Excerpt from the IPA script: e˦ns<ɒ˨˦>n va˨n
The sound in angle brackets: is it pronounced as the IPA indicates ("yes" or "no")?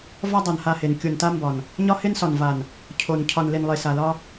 no